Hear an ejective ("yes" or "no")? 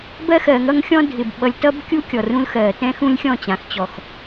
no